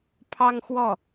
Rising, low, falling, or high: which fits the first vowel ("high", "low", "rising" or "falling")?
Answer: high